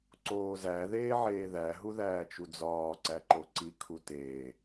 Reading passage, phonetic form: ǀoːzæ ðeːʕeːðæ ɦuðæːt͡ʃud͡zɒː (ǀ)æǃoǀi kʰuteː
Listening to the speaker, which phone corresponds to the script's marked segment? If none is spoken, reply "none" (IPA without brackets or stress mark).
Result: ǀ